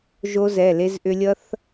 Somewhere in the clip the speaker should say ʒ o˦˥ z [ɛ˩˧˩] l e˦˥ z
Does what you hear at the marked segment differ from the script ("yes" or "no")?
no